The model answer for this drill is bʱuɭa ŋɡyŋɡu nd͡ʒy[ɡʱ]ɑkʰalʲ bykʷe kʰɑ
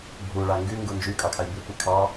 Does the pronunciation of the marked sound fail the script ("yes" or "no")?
yes